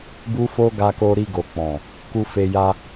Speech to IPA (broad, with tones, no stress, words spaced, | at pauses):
bu˦fo˦ɡa˧ko˧ ɾi˧ɡo˨ k͡pɔ̃˨ | ku˧fe˧ ja˧